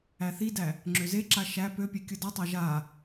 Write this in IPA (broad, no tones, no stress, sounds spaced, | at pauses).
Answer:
æ θ i d æ | ŋ͡ǁ ø z e ǁ a ʃ æ p ø pʲ e kʲ ɯ d ɔ tˤ æ ʒ a